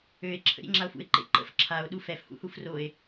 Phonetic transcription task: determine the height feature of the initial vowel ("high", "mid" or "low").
mid